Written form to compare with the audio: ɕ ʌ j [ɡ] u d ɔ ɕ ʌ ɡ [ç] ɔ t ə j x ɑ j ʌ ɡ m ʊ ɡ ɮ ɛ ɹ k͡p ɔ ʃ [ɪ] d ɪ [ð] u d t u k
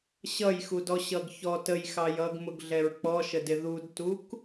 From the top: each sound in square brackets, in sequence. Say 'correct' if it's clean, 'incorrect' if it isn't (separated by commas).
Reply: incorrect, correct, incorrect, correct